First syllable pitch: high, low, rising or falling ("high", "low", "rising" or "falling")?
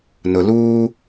low